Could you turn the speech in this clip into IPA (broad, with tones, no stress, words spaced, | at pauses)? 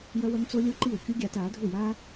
jɐ˦wɐ˦ŋt͡so˦ lʲo˦ǃi˦˨w kʲu˦ɡʲaː˧t aː˨˦dʱu˦˨jaː˦